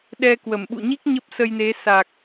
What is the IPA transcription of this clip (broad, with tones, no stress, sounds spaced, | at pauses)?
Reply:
ɗ ɛ˧ k w ə˧˩ m ɓ ṵ˧˨ ɲ i˦˥ k̚ ɲ ə˦˥ p̚ s ə˧ j n e˨˦ s a˨˩ k̚